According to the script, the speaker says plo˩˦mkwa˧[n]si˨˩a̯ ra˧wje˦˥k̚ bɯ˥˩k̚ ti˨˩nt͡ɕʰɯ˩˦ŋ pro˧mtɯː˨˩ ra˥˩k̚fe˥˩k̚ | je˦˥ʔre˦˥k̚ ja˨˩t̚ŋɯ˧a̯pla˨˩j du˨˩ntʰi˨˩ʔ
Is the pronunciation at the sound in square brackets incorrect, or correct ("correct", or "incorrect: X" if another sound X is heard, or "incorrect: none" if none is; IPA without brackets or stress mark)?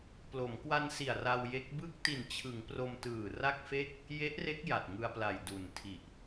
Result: correct